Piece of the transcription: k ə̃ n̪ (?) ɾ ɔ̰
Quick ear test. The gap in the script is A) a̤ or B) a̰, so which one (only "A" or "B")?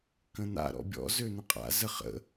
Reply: B